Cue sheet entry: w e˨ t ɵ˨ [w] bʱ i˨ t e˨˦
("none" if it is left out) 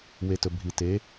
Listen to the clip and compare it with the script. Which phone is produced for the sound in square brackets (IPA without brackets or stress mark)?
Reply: none